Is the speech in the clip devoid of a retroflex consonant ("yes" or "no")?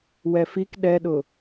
yes